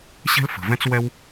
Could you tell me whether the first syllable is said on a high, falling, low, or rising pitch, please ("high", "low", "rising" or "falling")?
high